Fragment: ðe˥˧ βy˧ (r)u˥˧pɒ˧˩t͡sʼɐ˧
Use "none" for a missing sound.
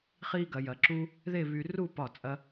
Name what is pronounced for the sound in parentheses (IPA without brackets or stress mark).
r